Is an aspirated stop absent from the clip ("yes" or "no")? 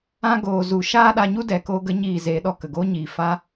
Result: yes